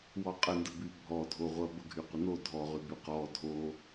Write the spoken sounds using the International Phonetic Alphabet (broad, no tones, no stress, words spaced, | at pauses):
wɔqʼəndəby bʱɔdʱoʁʷɐ bəɡʱyqʷəno dʱɔʁy byqɔ dʱo